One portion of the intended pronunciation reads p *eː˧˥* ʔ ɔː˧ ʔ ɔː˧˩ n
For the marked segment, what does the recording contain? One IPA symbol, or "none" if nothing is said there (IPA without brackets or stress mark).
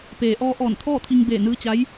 eː˩